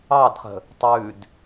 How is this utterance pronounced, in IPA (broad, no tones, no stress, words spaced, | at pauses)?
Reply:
ɑdχə̤ | tˤʉd